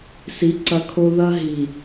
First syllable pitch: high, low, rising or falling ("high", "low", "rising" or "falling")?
rising